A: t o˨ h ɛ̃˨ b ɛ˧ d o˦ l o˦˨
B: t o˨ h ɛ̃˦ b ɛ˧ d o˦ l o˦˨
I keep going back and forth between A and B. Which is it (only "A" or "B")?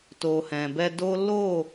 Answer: A